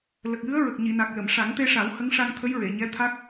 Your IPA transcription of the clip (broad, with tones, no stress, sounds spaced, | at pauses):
l ə˨˩ k̚ j ɨ˧˥ ə̯ ɹ ə˨˩ k̚ ɲ i˨˩˨ n a˨˩ k̚ l ə˨˩˨ m ʂ a˨˩˦ ŋ t̪ e˧ ʂ a˨˩˦ w h ə˧˥ ŋ ʂ a˧ ŋ t̪ʰ ə˧˥ j ɹ e˨˩˨ ɲ ɛ˧˥ t̪ʰ a˦˥ k̚